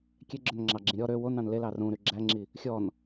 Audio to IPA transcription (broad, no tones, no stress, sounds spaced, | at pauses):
kʲ ɛ ɡ͡ǁ œ n ŋ͡ǁ ɑ ɡ͡ǁ ĩ ɾʲ ɔ ɾ ø w o n ɑ̃ n l e l ɑ r ũ ɾ y ɡ͡ǁ æ ŋ͡ǁ i | xʲ ɔ n